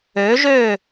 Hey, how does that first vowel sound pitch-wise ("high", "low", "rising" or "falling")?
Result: rising